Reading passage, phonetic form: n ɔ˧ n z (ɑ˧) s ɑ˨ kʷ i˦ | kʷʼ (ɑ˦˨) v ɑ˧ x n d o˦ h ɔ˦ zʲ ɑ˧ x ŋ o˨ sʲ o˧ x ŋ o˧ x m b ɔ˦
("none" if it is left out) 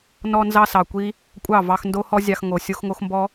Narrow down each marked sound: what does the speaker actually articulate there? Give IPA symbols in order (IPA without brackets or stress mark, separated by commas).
ɑ˧, ɑ˦˨